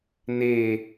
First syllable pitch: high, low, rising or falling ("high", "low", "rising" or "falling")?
falling